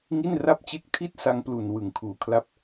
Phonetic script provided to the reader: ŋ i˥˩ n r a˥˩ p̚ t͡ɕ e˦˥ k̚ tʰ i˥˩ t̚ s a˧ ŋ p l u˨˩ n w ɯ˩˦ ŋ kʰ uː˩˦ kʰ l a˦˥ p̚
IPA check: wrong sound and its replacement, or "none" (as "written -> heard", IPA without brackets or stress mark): none